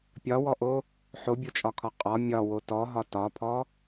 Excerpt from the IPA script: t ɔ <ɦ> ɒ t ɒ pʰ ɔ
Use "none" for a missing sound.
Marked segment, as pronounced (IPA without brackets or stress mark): ɦ